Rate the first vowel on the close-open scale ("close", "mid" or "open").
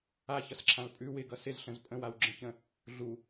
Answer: open